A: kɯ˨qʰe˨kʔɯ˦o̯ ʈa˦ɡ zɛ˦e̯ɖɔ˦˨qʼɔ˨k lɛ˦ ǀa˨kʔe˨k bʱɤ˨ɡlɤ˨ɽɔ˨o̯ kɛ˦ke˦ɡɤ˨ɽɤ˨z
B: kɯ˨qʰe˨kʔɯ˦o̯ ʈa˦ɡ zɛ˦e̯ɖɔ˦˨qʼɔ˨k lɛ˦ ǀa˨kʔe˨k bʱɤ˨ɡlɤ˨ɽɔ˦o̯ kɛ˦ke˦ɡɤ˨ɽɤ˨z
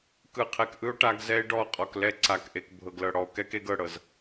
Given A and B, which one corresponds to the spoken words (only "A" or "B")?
A